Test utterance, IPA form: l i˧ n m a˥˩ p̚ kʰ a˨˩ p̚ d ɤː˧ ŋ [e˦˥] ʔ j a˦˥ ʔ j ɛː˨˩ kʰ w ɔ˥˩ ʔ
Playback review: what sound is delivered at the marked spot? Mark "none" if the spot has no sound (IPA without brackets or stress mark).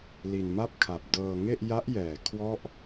e˥˩